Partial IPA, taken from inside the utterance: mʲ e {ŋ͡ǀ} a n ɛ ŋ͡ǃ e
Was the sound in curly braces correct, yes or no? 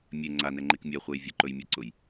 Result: yes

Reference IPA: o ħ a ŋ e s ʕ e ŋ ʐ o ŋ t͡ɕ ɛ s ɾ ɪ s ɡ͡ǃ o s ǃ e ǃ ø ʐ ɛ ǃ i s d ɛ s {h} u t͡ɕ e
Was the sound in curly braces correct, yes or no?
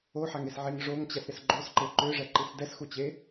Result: no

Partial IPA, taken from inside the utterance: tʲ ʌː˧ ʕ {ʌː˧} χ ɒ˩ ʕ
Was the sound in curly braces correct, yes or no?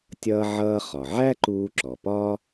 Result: yes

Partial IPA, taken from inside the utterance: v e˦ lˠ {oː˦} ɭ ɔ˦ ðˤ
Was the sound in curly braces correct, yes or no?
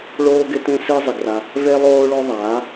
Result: yes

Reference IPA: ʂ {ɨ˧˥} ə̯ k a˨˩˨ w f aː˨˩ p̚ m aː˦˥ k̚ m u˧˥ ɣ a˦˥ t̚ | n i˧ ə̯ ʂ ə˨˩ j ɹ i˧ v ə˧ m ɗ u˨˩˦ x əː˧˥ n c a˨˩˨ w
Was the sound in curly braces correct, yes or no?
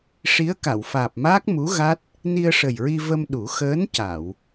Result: no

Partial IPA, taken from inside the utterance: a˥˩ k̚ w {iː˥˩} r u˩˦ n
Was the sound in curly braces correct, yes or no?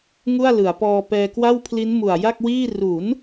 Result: yes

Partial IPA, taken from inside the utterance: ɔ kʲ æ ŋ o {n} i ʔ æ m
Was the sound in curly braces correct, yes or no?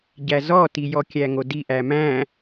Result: no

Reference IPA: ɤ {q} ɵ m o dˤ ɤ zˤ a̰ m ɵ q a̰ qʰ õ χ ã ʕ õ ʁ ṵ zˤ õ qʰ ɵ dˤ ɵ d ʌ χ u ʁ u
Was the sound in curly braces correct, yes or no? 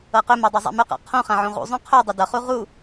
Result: yes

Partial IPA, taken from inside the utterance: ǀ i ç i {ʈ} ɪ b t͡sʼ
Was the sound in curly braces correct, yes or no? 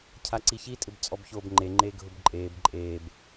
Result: no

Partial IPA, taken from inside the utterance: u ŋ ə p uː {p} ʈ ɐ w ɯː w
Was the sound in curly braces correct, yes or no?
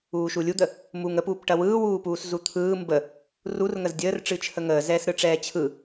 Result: yes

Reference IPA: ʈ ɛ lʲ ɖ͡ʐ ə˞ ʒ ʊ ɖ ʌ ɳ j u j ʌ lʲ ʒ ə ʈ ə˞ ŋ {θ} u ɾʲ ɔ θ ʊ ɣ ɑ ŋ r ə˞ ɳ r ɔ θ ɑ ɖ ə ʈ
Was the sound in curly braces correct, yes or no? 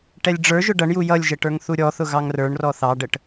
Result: yes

